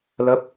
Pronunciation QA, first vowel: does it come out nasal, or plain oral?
oral